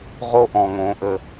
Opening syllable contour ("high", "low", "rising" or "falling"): high